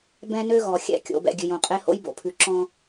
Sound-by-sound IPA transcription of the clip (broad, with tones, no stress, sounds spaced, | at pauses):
b ɛ̃˦ n ø˦ ɣ ɔ˨ xʲ ɛ̰˦˨ kʲ o̰˨ b ɛ̰˨ ɡʲ ʉ˨ j õ˨ qʼ e˦ h o̰˦ j b o̰˨ pʰ ʉ˨ ǁ ɔ̃˦